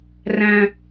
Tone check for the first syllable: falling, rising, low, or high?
low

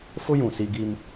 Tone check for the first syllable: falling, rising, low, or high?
high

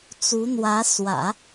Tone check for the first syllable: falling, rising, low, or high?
rising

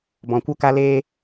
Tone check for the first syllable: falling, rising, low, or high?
low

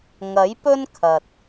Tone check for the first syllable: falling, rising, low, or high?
rising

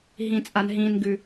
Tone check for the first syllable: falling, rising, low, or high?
high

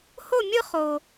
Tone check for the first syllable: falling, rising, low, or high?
falling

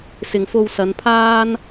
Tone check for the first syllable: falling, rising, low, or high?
low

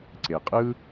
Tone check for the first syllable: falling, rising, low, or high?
low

